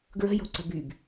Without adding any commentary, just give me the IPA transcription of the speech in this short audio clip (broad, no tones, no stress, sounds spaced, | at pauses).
ɡ ɹ ə̤ j o̤ ǀ ə̤ b y b